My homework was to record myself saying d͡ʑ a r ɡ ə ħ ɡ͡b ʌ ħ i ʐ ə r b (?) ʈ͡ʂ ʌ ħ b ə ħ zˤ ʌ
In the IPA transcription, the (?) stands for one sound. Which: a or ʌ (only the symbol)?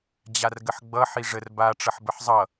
a